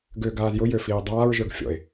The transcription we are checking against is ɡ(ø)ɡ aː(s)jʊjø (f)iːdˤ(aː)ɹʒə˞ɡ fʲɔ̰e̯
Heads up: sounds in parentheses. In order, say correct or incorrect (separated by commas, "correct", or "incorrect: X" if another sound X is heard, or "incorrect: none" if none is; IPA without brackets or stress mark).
correct, incorrect: z, correct, correct